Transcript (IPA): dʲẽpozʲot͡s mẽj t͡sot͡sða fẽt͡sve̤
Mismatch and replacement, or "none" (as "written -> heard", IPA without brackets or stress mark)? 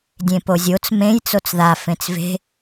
none